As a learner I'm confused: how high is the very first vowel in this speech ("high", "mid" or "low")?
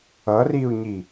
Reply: mid